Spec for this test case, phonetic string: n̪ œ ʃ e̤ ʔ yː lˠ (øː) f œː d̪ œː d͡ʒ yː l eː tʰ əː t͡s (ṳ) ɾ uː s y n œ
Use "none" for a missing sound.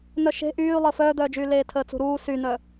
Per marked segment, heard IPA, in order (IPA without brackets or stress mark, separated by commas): əː, ṳ